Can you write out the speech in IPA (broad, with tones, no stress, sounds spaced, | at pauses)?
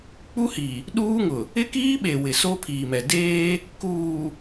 k͡p u˦ h i˨ | ɗ uː˦ ŋ ʊ˨ | ɪ˦ k iː˦ ɓ e˨ w ɪ˨ s o˦ pʰ iː˨ m ɛ˨ d eː˦ | k uː˨